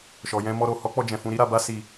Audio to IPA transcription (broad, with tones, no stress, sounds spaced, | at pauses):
ʃ ɔ˨ j ɛ̃˧ m ɔ˧ ɾ o˨ h ɔ˨˦ k͡p ɔ˧ d͡ʒ ɛ̃˨ f ũ˧ ɾ i˦ ɾ a˧ b a˦ s i˧